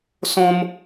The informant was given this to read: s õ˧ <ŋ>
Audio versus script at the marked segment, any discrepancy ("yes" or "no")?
yes